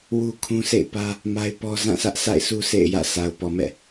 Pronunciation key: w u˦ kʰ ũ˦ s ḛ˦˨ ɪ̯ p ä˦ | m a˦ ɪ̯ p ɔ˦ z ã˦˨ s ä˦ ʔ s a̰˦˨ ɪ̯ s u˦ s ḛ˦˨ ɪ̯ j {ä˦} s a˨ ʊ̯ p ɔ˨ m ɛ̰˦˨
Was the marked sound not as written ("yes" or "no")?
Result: yes